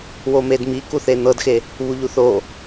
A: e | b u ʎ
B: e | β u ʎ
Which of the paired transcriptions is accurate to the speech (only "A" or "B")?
B